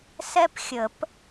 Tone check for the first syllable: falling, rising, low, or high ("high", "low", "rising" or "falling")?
high